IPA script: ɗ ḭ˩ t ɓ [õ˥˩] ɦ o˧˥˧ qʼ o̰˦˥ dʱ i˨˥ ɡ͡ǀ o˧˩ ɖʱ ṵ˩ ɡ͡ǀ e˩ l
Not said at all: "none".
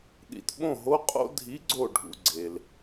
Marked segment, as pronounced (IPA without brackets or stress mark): õ˥˩